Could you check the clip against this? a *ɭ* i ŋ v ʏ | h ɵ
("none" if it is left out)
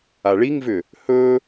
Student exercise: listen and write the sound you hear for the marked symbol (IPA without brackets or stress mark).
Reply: ɭ